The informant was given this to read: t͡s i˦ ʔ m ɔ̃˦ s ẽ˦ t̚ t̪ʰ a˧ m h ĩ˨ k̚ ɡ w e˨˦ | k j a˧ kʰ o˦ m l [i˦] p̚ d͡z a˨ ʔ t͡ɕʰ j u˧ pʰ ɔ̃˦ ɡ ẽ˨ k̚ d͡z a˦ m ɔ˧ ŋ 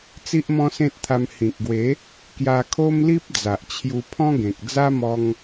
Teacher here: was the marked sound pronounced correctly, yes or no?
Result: yes